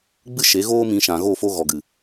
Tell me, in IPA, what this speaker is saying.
ɡ͡b ɨ˦ ʃ e˨˦ ɣ oː˦ m ĩ˧ ʃ ã˨ ɣ o˦˨ f o˧ ɣ ɔ˨ ɡ ɨ˨

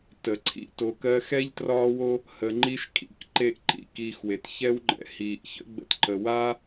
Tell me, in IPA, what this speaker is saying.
t ə˩ ǀʰ ḭ˦ t o˨ k ɜ˦ x ɛ˥ ʎ t r ɒː˦ w o˦ | h ə˨ ŋ͡ǃ i˦ ʃ kʰ ḭ˦ k ǃ e˦ ʔ ǃ ḭ˥ k iː˨ x w e˩ t ç ɛ˦ w ŋ͡ǃ ɛ̰˩ h iː˩ ʔ ç ə̰˦ ɡ͡b ə̰˨ t ǃ ə˩ w aː˦

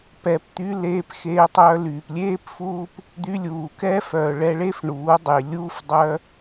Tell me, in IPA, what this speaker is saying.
p ɛ˨ p t̪ y˧ l eː˧ p x eː˧ tˤ œː˧ l yː˨ p lʲ eː˦ p f uː˦ p | d̪ y˧ lʲ uː˨ k ɛː˦ f œː˨ ɭ ɛ˧ ɭ e˦ f ɳ uː˨˦ dˤ y˨ lʲ uː˦ f dˤ œ˦

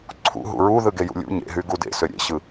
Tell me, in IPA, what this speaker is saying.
ǀʰ ṵ ɦ ṵ ɹ u ð ɯ ɡ e j ṵ lʲ ṵ ɲ ḛ ɦ y ɡ u d ḛ s ø ɾʲ ḛ ɕ ɯ

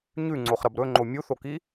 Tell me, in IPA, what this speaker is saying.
ɲ ʉ ŋ͡ǀ o χ ɾ ɐ b ɾ ɵ ŋ͡ǃ o mʲ u θ o k i

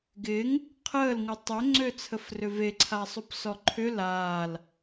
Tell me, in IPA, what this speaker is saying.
ɡ ɪː ŋ | qʰ əː l ŋ u tˤ ø ŋ͡ǀ ø t͡sʰ ə f r ʏ v e ǀʰ a sˤ u p s ɔ ǃʰ ʏ l aː l

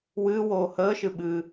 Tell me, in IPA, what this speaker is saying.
w ɨː w oː h əː ʃ ɨ ɓ ɨ

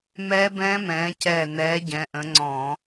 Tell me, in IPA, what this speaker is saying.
m ɛː˦˥ b ɛ̃ː˦˥ m ɛ̃ː˨˦ c ɛː˧˩ n ɛː˨˦ ɟ ɛ̃˨˦ ʔ ə̃˨˦ ŋ͡ǀ ɔ̃˧˩˧

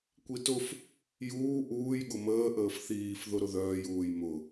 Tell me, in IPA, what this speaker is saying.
kʷ i t ʊ f | j uː ʔ uː j ɠ ʊ m əː ʔ əː f θ iː f ð ʊ ɾ ʊ ð œː j uː j m ʊ

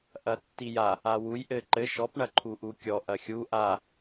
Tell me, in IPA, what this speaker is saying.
ʔ ɐ tː i j a | a w u j ʔ ɘ ǃ ɘ ʃ ɔ p ɳ ɐ ǃʰ u ʔ u kʲ ɔ ʔ ɐ xʲ u ʔ a

